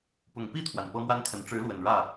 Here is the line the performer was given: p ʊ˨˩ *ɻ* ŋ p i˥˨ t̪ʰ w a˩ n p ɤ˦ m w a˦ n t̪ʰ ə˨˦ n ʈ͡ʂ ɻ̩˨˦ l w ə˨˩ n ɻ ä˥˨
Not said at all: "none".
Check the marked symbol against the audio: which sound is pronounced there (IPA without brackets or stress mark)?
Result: none